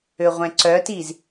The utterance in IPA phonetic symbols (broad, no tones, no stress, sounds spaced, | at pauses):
ø ʁʷ ɛ̃ ǀ œ t i z